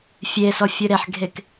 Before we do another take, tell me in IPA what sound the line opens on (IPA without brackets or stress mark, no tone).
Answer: fʲ